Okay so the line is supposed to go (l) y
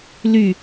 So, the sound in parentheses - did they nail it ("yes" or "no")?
yes